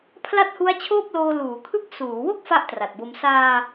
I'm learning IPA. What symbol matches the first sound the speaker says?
pʰ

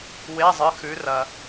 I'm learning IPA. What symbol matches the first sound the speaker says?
w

